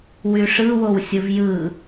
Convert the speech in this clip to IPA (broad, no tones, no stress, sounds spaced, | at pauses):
w y ʂ ɯ w o w sʲ ɯ v j ɯ